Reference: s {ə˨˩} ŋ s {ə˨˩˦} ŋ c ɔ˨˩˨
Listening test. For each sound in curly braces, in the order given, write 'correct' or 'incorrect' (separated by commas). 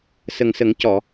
correct, correct